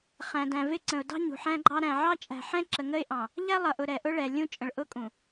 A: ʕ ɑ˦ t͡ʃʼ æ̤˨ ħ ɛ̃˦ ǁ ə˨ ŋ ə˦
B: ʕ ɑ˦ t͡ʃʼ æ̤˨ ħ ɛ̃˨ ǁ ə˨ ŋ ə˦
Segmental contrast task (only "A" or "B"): A